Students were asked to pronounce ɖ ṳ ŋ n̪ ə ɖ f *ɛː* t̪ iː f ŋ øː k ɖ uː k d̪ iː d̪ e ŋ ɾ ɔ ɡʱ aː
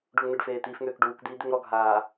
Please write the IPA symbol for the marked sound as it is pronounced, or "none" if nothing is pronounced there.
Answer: eː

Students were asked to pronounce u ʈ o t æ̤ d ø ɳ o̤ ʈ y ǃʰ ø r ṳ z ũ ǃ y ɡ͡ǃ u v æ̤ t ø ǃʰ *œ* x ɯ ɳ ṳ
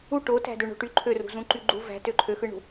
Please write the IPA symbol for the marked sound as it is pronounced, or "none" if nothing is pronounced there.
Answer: ø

